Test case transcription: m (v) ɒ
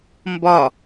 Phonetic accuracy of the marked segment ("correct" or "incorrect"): incorrect